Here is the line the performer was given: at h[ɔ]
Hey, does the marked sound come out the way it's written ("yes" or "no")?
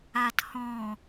no